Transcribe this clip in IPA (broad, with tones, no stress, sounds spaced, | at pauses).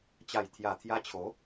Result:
t͡ɕ a˨˩ j t̪ʰ j a˨˩ t̪ʰ j a˧ t͡ɕʰ o˨˦